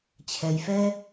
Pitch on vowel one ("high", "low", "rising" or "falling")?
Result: low